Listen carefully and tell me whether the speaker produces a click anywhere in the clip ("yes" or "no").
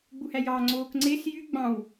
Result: yes